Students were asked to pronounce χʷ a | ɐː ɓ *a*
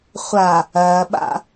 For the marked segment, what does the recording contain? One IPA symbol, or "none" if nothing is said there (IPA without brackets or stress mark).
a̰